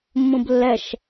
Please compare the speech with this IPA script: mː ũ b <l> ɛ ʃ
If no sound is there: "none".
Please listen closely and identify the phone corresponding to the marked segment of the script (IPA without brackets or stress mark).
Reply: lː